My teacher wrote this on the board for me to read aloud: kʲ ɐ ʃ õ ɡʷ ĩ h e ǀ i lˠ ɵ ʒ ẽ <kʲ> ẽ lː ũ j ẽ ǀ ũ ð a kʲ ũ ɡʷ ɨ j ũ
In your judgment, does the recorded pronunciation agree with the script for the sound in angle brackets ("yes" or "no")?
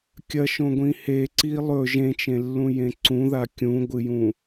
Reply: no